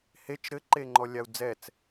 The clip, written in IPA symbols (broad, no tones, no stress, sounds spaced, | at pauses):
h e t͡ʃ ɾ ɘ ǃ e ŋ͡ǃ ɔ lʲ a u̯ d͡z ɛ t͡s